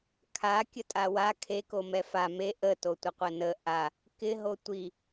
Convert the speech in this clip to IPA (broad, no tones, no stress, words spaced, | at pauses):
kʰa kʲətʼawa kʰe komɛfa me ʔə totʷəqʷənə ʔa | kɪ ɦotʷi